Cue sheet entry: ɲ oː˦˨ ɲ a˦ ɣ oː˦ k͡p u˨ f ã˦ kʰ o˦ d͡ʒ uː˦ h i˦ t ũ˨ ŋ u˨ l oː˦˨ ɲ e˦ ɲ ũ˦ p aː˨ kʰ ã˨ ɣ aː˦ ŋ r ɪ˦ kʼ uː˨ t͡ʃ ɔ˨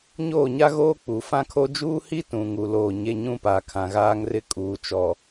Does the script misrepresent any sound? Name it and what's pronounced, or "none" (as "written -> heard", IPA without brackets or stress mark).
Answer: none